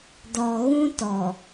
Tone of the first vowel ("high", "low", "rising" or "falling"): low